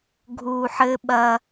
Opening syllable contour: low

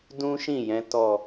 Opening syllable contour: high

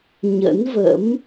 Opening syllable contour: rising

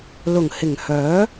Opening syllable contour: low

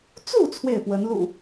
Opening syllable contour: falling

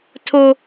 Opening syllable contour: high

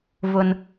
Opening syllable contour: high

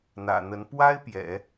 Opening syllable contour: low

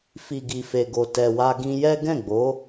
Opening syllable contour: low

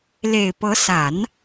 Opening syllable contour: low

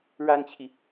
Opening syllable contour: high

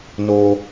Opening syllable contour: high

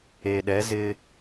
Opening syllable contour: low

